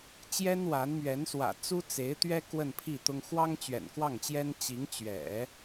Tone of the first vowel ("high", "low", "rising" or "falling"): high